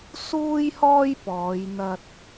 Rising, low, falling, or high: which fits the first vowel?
high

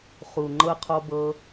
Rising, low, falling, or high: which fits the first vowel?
low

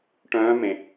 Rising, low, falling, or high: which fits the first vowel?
rising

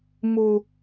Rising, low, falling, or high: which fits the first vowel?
high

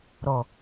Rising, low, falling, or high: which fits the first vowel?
low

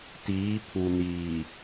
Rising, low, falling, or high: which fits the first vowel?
rising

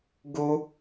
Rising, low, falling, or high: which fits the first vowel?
high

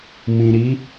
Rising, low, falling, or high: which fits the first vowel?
low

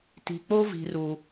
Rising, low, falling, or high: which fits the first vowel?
low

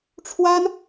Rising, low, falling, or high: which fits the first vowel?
high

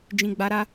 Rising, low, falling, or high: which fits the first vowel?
low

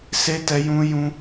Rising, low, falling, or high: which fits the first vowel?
high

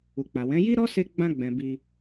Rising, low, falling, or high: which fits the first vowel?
low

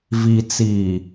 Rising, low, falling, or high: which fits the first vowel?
low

